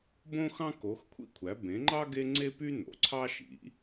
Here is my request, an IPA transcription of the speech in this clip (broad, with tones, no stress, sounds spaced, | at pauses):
b õ˥ x ɑ̃˥ k o˩˥ x kʷʰ ḭ˥ kʷʰ æ˩˥ b ẽ˩˥ ŋ͡ǃ ɑ˥ ɡ e˥ ŋ͡ǀ e˥ p y˥ n o̰˩˥ ǀʰ ɑ˥ ʃ ḭ˩˥